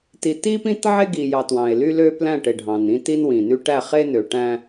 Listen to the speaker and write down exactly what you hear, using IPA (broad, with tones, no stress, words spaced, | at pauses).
ti˨ ti˦pĩ˦tʕe˦ ɡi˨jɑ˨ twɑ̃˨e̯ly˦lø˦ plæ̃˦˨ʈe˨ɖʱɑ̃˨n ĩ˦ti˦nwĩ˨ny˦ ʈæ˦˨χe˦ nø˨ʈæ̃˦